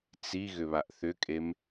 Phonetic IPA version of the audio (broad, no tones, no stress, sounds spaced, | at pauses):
t͡s i ɣ ʏ β a ʔ θ ʏ kʼ e m